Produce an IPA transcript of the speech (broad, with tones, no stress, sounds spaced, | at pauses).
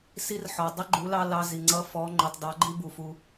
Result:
s i˧˥ r ħ ɔ˩ dˤ ə˧˥ ɡ͡ǃ u˩˧ l ɑ˧ l ɑ˧ z i˩ ŋ͡ǀ ʌ˧˥ f ɔ˩˧ ŋ͡ǃ ʊ˩ tˤ d ɑ˩˧ ɡ͡ǃ i˧ b u˩ f u˩